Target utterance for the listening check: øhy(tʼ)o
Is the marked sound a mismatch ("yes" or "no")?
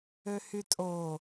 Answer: no